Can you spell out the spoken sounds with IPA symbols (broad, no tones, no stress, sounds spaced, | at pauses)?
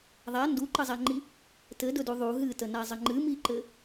ðˤ a n d u ǃ ə zˤ a ŋ͡ǃ i | t ɘ d ɵ d u ðˤ u ɦ ɨ t ə n a zˤ ə ŋ͡ǃ ɨ m i ǃ ɘ